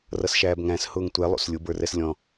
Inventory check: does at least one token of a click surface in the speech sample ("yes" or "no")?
no